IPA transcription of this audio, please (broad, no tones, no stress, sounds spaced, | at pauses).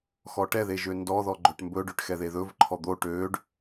x ɔ ʈ ɛ ð e ʒ ø n d ɔ ð ɔ ɡ͡ǃ ø ʈ m b ɵ ɖ ø ʈ x ɛ ð e ð ɵ v ǃʰ ɔ d̪ o ʈ ø ɖ